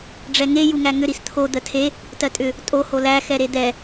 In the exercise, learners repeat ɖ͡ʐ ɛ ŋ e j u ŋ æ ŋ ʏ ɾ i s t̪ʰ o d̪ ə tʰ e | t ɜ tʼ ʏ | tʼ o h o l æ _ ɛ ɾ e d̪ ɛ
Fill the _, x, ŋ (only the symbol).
x